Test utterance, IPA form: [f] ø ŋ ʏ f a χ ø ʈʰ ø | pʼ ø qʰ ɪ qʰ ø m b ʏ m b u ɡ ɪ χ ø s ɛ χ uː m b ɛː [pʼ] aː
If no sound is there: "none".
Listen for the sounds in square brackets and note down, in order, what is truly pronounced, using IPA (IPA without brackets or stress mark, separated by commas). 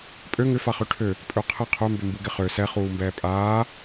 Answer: pʼ, pʼ